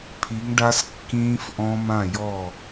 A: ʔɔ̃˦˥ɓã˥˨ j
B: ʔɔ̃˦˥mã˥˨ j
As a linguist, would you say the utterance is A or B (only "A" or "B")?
B